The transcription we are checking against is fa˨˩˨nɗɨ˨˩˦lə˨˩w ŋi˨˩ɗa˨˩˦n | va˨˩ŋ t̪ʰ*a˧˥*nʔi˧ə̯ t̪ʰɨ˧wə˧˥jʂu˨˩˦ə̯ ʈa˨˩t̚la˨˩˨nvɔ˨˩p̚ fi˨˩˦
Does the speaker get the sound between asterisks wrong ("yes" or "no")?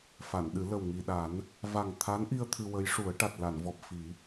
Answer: no